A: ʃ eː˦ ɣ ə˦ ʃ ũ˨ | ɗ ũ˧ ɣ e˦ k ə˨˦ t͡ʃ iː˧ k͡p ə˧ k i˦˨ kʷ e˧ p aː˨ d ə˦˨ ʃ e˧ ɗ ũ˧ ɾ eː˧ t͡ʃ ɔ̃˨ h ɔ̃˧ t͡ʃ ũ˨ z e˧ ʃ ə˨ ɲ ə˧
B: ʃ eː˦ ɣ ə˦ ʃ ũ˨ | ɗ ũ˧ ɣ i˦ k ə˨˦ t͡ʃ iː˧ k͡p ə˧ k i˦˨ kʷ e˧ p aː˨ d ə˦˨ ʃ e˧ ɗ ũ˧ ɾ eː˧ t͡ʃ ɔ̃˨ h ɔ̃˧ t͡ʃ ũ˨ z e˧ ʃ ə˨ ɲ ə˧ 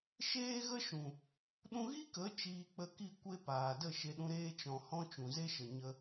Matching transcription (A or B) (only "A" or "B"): B